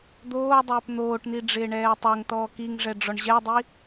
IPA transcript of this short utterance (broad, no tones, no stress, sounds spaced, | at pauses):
d̪ oː dˤ ɪː p n̪ oː ʈ n̪ i ɖ͡ʐ ɪː ɳ ɛː tˤ o ŋ t ɔː k i ŋ ʐ ɛ ɖ͡ʐ ɔ ɳ ʑ ɛ dˤ i